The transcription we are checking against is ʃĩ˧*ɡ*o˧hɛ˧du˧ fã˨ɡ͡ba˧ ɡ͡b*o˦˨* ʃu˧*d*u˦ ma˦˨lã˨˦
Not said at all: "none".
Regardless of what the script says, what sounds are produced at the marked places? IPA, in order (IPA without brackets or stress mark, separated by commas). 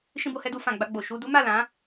b, o˨, d